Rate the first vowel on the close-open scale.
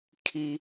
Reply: close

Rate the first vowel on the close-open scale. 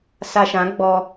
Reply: open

